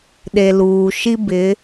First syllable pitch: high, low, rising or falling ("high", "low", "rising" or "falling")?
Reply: low